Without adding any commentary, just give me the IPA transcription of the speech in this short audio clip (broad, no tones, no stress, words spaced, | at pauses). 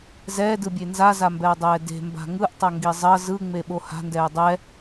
zɛːdɯbʲe nzazambɛɐ̯dˤɛː de̤mba̤ ŋɯʔtˤʌŋɡi zˤʌ zɯŋ͡meɓo ha̤ndɛː dˤɛ